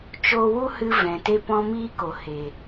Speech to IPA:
t͡ʃ oː˧ w u˦ h ɨ˧ v ɛ̃˨ t e˦ p ɔ̃˦ m iː˦ k o˨ h e˨

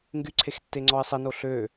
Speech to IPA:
ŋ ɡ y ǀʰ e x tː e ŋ͡ǀ ɔ ɪ̯ sˤ i n o ɬ ø

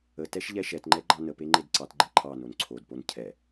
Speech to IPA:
ə t ɛ ʃ ʎ ɛ ʃ ɛ t ŋ͡ǃ ɛ ɡ͡ǃ ɑ n ə p e ŋ͡ǃ e d ǀ ɑ t ɡ͡ǃ ɛ ǃʰ ɑ n o n ǀʰ o d p o n cʰ ɛ

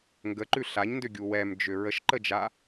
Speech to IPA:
ŋ ɡ ə ǃ ʉ ɬ a ɲ n d ʏ ɡʲ u w ɛ m d͡ʒ ʏ ɹ ə ʃ ǃ ə d͡ʒ a

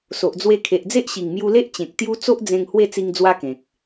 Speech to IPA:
s o˨ ʔ d͡z w e˧ kʰ e˨ ʔ d͡z e˦ ʔ ɕ i˨˩ ŋ m j u˧ l e˦ ʔ t͡ɕ ẽ˨ k̚ t̪ j u˦ t͡s o˦ ʔ d͡z ẽ˧ ŋ h w e˥˧ t͡s i˧ ŋ d͡z w a˦ k ẽ˨ k̚

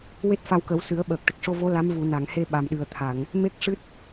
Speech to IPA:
w e˦˥ t̚ f a˧ w k ə˨˩˦ w s ɨ˨˩˦ ə̯ ɓ əː˨˩ k̚ ʈ ə˨˩ k̚ ʂ o˧ v o˧˥ l a˧˥ m v u˨˩˨ n a˨˩˨ ŋ h e˧ ɓ a˨˩ m ɗ ɨ˨˩ ə̯ t̪ʰ a˨˩˨ ŋ | m e˦˥ k̚ ʂ ɨ˦˥ t̚

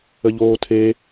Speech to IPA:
ə ʎ oː tʰ e

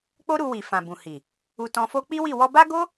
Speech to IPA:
k͡p o˦ ɾ u˧ w i˨ f ã˨ b ũ˨ h i˨ | u˧ t ɔ̃˧ f o˦ k͡p i˦ w i˦˨ w ɔ˧ b a˦ ɡ o˦

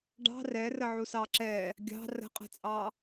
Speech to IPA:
ɖ ɑ̤ r ɛ r ə ʕ u s ɑ ǁ ɛ | ɡʲ ɑ̤ r ə̤ qʼ ɛ̤ t͡sʼ ɑ

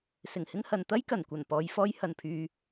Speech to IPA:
s ɪ˨˩ ŋ h ɪ˥ ŋ h ɐ˨ n t̪ ɐ˥ j k ɐ˨˩ n kʷ ɐ˨˩ n p ɔː˨˧ j f ɔː˥ j h ɐ˧ n pʰ yː˧

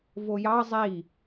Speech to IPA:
v o j ɑ zˤ i

